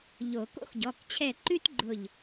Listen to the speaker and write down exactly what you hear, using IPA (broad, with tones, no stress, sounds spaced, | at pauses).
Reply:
ʎ o˨˩˦ k o̰˦ x ɟ ɔ˩˧˩ k t͡ɕʰ ɛ˧˩ ǃ ʉ˦ t ɡ͡ǃ ʊ˧˩ ʎ